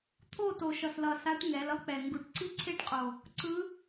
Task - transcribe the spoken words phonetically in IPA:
t̪ʰ o˥˧ t o˨˩ ʃ ʌ˨˩ s l ʌ˨˩ s a˧˥ ʈ ŋ ɛ˩˧ l ʌ˥ k͡p ɛ˨˩ ŋ ɡ u˨˩ ʈ ǀ i˥ ǀʰ e˥ ʈ qʼ o˨˩ | ǀ ɯ˧˥

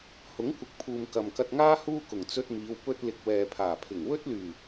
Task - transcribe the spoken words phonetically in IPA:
h ʊ˨˥ ŋ kʷ ɪ˨˥ k̚ pʰ uː˨ m k ɐ˨ m k ɐ˧ t̚ ŋ aː˥ h uː˥ k ʊ˨˩ ŋ t͡s ɵ˧ t̚ m iː˨˧ w p ɵ˧ t̚ l ɪ˨ k̚ w ɛː˨ pʰ aː˨˩ pʰ ɪ˨˩ ŋ w ɵ˥ t̚ l yː˨˩

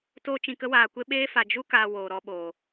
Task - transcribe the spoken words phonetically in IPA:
t o˦ t͡ʃ ĩ˧ k ə˦ w aː˧ kʷ e˦ ɓ eː˦ f a˧ d͡ʒ u˦ k aː˧ w oː˧ ɾ ɔ˦ ɓ o˧

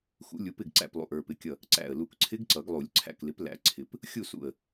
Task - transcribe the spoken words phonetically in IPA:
x ṵ˨˥ lʲ u˨˥ p ɪ˥˨ ɡ ǀ æ̰˥˨ p lˠ ṵ˩˧˩ ʔ ə˞˧˩ p ɪ˩˧˩ kʲ ʌ˧˩ | ǀ æ̰˧˩ ə̯ l u˧˩ k ǀʰ ɪ˦˥ ɡ ǀ ʌ˨˩˦ ɡ lˠ u˨˩˦ lʲ ǀʰ æ̰˧˩ k l ɪ˨˥ p l æ̰˨˥ ǀʰ ɪ˨˩˦ p | xʲ u˥˨ s ṵ˧˩ ə̯

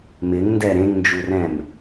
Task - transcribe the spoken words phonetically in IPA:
m ɪ ŋ n d ɛ ɾ ẽ ŋ n d͡ʒ u r ɛ̃ m

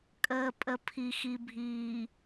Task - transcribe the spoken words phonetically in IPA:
kʼ əː˨ pʼ ə˨ pʰ i˨ x i˨ bʱ iː˨

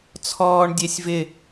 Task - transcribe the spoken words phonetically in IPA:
t͡sʰ ɔː ɳ dʲ e sʲ v ɪ

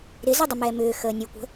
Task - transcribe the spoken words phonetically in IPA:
ɾ ɪ z ɪ dˤ ə m ɛː m ʏː x əː nʲ u kʷ ə̤

